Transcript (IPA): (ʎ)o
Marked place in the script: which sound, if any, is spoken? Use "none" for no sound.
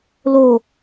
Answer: l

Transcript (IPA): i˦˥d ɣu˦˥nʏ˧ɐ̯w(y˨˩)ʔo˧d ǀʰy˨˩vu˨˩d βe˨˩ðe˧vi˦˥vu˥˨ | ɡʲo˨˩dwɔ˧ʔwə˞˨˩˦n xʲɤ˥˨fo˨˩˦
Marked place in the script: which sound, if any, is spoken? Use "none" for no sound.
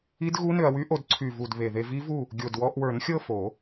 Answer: y˦˥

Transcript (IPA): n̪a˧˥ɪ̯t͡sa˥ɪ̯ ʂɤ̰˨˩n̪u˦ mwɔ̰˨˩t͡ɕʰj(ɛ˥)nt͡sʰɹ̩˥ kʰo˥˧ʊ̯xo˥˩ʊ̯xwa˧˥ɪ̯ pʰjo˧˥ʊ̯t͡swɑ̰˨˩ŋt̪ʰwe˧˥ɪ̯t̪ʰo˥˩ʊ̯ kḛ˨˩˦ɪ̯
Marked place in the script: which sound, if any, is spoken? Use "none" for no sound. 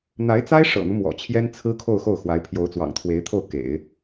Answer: ɛ˥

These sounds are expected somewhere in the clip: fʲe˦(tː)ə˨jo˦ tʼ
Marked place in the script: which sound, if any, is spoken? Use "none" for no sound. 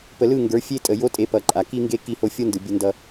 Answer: tʼ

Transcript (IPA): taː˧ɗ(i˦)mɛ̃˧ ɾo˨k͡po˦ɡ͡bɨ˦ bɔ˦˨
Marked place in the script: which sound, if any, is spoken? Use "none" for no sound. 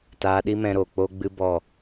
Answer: i˦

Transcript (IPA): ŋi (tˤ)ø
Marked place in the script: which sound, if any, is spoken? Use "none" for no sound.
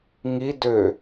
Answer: d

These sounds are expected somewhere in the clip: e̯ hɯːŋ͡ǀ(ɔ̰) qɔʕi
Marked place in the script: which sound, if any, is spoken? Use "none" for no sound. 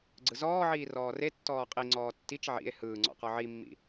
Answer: ɔ̰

